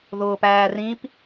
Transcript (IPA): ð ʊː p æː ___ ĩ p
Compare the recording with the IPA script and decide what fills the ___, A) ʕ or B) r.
B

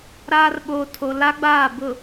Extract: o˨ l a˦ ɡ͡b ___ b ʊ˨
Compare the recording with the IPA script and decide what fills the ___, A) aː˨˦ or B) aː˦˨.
B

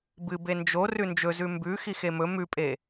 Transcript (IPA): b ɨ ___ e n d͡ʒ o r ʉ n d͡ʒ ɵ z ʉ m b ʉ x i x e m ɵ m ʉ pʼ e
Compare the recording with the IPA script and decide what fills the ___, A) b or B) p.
A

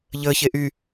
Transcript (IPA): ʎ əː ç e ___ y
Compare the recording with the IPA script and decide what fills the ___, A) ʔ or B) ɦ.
A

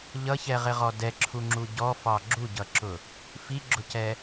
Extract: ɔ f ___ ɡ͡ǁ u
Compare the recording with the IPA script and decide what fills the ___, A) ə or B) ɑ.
B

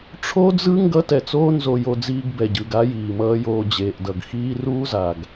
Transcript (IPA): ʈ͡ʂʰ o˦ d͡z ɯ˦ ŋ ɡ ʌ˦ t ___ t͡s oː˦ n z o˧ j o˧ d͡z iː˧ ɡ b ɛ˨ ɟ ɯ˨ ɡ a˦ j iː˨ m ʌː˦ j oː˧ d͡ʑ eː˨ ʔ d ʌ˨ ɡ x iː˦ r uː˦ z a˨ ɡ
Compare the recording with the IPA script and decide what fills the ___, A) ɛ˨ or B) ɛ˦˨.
A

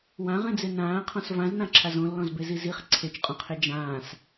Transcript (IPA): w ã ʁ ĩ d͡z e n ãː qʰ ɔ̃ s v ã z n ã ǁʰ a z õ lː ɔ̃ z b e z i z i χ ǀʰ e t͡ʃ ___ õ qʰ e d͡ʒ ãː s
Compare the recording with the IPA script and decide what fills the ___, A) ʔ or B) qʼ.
B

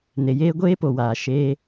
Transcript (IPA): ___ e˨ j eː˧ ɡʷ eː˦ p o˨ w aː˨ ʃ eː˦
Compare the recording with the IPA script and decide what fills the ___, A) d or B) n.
B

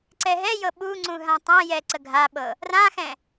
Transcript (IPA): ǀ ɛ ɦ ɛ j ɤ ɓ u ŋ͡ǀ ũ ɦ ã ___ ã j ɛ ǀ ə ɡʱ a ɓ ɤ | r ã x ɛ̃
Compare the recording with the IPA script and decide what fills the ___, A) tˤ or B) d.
A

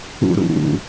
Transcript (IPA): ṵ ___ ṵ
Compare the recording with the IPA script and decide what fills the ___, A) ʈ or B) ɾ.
B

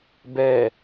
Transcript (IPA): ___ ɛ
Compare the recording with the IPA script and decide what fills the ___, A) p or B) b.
B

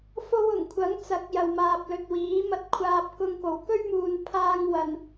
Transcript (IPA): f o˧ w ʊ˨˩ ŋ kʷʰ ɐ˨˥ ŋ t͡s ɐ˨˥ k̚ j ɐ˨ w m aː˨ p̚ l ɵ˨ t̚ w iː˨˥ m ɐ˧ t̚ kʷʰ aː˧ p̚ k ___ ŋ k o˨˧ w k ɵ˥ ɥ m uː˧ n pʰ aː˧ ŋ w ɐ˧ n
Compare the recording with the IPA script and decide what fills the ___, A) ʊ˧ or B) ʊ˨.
A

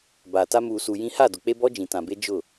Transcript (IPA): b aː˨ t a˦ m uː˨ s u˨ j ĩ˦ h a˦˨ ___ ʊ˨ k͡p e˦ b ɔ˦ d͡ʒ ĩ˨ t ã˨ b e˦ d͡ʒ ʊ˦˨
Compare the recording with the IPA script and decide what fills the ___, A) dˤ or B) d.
B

